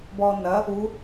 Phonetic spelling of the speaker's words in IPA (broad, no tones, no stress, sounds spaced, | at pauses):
b ɔ n ɐ | u